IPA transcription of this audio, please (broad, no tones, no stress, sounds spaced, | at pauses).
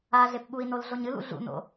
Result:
a ɮ e p ɓ u i̯ n o l ɮ o ɲ ɨ l ṵ ɮ ṵ n o̰